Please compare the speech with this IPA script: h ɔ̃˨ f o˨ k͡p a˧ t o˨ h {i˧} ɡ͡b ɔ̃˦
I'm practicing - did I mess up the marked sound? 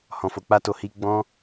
no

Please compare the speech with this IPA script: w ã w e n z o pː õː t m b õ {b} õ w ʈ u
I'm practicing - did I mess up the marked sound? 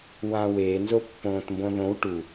yes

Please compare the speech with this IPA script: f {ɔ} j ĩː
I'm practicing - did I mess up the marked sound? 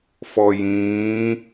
no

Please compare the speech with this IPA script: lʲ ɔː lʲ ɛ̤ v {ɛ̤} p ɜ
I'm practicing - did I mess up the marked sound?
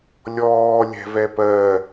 yes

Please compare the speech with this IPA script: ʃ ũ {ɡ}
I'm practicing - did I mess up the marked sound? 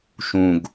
no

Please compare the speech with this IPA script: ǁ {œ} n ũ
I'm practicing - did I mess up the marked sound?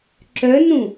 no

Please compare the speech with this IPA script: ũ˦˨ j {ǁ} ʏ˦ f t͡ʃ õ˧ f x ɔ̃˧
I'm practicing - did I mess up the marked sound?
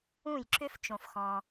no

